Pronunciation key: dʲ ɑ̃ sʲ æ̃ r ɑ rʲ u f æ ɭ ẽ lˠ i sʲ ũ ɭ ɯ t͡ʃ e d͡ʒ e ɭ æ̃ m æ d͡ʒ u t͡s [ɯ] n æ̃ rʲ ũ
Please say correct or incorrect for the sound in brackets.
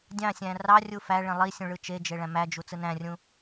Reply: correct